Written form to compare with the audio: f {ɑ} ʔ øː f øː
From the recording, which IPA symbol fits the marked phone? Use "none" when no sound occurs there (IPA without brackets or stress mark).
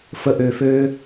ə